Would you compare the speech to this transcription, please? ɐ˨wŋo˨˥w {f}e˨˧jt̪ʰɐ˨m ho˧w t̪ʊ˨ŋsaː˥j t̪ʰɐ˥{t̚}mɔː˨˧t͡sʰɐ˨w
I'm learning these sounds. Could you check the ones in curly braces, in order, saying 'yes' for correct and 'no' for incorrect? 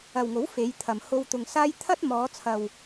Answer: yes, yes

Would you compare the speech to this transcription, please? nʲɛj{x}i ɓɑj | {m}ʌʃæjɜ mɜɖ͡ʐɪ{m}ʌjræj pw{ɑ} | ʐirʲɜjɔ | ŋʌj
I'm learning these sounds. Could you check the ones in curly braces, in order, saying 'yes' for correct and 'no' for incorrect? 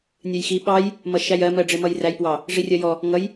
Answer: yes, yes, yes, yes

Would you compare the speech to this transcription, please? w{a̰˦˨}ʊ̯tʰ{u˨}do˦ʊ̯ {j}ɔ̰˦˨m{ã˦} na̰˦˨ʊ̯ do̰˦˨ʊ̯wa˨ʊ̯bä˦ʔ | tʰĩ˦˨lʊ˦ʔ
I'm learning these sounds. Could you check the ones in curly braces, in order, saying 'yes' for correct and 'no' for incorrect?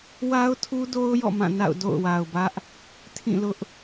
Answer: no, no, yes, no

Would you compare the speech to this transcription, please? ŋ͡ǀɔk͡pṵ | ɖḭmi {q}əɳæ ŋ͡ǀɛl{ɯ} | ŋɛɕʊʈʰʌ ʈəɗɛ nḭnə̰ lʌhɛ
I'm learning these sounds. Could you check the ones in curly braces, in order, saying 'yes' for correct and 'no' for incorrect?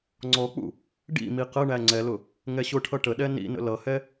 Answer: yes, no

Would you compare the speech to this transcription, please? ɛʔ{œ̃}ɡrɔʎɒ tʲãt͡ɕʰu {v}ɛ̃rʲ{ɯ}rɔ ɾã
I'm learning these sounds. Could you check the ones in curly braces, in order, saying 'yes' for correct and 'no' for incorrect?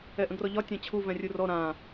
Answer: no, yes, no

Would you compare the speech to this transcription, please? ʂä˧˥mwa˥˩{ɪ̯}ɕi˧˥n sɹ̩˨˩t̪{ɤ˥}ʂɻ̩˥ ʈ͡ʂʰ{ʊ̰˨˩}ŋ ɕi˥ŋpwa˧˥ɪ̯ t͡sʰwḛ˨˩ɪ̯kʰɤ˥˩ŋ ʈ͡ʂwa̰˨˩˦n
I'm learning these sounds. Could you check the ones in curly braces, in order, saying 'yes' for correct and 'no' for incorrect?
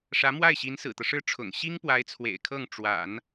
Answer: yes, no, yes

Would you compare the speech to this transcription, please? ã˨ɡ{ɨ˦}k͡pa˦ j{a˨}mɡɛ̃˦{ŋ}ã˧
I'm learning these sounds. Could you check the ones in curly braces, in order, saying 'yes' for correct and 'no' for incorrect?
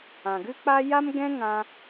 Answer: yes, no, yes

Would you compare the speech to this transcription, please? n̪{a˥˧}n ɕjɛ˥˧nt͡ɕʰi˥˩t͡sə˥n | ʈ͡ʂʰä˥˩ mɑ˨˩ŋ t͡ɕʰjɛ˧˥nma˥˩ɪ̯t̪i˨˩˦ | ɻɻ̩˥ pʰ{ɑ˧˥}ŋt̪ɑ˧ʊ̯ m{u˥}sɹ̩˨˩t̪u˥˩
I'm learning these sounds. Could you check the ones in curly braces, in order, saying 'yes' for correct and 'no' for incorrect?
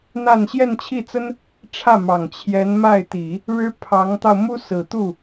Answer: yes, yes, yes

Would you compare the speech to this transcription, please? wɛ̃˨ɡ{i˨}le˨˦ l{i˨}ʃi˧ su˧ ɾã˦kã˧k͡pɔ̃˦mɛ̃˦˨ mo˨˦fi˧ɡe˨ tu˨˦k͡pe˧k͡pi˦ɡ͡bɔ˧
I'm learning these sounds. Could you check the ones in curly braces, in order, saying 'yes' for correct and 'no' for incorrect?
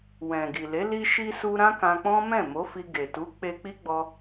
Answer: yes, no

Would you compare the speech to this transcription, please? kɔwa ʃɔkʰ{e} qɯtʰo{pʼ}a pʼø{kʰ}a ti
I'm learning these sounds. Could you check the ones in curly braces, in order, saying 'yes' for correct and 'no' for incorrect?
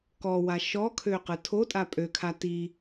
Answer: no, no, yes

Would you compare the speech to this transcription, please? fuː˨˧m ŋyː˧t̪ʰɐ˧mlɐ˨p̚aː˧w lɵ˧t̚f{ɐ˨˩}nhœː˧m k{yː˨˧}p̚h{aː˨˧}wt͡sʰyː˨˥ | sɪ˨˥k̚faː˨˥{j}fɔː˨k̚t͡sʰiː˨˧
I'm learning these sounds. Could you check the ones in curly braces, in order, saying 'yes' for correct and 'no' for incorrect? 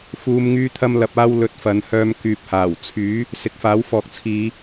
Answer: no, no, no, no

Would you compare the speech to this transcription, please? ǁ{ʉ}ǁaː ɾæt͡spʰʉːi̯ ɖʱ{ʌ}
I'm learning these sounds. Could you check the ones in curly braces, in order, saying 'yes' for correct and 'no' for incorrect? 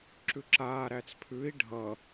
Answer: yes, yes

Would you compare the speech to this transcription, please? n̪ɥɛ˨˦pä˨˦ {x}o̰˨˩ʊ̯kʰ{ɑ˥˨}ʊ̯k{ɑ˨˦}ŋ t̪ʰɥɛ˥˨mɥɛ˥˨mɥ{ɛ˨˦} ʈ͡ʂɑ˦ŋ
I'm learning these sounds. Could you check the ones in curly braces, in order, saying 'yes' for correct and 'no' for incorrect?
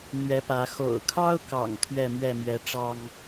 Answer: yes, no, no, yes

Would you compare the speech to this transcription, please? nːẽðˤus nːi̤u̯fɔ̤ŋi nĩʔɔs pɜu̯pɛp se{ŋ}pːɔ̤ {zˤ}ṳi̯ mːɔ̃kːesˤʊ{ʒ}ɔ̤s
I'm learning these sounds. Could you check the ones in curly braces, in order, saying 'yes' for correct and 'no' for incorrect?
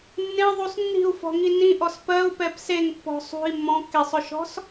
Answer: yes, no, no

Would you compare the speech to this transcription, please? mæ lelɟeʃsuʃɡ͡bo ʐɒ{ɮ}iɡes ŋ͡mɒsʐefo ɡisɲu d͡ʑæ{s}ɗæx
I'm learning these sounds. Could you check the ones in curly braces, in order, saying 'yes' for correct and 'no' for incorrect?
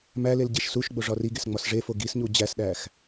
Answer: no, yes

